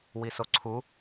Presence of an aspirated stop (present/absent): present